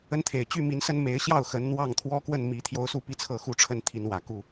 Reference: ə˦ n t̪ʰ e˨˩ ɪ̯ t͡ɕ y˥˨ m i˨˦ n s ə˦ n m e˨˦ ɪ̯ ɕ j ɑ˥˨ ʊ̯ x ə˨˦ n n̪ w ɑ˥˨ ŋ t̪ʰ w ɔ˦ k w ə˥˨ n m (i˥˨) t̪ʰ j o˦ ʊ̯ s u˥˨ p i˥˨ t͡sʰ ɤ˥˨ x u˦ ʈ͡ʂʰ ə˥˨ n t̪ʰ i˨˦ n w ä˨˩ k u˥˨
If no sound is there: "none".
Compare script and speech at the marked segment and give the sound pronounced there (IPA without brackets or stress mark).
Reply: i˨˦